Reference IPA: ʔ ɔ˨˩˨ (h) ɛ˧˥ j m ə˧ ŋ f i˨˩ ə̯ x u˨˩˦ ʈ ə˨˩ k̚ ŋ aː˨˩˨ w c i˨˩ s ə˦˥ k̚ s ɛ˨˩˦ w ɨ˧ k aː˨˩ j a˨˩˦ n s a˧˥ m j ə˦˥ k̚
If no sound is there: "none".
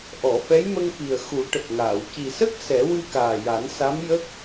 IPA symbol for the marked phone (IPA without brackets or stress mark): f